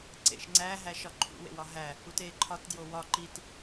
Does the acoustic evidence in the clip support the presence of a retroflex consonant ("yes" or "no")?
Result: no